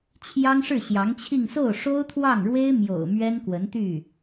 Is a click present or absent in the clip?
absent